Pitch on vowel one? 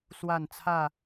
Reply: falling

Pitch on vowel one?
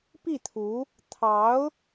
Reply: falling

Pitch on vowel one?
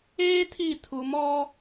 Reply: high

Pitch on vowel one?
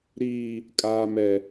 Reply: high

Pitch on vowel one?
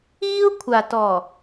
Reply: high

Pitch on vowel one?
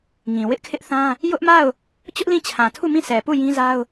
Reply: low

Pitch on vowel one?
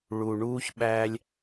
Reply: low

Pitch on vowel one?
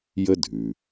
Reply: high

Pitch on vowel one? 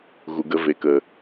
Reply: low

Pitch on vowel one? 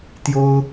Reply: high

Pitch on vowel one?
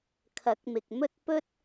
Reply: rising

